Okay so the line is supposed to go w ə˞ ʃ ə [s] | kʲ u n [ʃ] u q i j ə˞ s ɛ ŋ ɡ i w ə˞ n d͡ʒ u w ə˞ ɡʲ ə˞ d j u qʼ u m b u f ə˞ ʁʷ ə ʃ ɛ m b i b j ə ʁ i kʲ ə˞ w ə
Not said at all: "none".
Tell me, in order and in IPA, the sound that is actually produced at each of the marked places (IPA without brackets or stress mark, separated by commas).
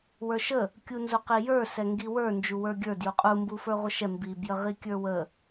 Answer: none, z